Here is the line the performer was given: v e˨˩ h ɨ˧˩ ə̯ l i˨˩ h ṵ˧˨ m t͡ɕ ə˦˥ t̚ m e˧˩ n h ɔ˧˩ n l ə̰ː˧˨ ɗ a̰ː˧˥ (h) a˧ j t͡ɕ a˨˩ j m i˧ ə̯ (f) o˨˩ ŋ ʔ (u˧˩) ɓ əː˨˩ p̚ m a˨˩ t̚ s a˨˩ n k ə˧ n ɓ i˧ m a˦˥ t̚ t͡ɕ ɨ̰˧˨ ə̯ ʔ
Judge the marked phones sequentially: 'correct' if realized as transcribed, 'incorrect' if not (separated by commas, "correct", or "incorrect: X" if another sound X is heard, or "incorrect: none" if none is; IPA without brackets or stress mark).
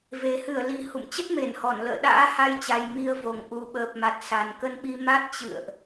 correct, incorrect: v, incorrect: u˨˩